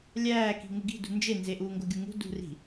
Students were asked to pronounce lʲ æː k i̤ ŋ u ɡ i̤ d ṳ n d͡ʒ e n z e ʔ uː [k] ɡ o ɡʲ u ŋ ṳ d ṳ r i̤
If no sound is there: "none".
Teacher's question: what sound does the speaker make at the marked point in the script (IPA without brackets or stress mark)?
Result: ŋ